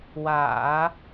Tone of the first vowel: low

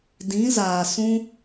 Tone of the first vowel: rising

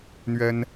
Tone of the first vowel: high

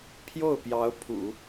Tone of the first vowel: falling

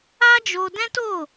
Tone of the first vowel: high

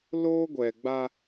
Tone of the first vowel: high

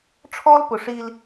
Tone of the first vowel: high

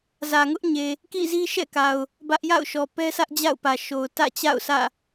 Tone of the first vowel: low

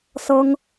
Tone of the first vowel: high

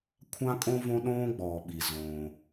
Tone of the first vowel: high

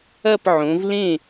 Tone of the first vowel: falling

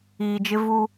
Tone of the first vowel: low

